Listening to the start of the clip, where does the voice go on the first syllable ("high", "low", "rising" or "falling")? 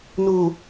low